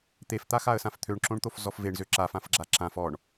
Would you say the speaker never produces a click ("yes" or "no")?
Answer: no